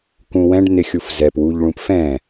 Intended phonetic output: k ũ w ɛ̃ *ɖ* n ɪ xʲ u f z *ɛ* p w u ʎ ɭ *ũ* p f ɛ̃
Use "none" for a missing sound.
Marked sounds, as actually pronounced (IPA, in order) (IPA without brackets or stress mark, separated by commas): ɖ, ɛ, ũ